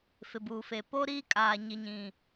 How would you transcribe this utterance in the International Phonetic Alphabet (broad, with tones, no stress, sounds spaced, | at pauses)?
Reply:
f ɪ˨ b uː˨ f e˨ p o˦ ɾ iː˦ kʼ aː˨ ɲ i˨ ɲ ĩ˨